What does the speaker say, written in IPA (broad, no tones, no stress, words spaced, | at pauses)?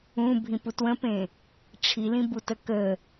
ũbʱĩp utwə̃pẽ | ʈ͡ʂʰilĩbutə kə